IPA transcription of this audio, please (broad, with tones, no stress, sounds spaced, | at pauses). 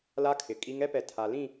l a˦ kʰ ɪ˨ kʼ i˦ ŋ ɛ˦ p ɛ˨ tʰ a˨ l ĩ˦˨